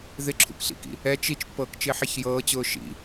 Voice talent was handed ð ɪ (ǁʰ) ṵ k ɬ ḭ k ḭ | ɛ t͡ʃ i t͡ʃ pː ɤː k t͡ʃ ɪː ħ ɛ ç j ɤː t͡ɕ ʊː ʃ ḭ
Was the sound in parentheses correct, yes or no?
yes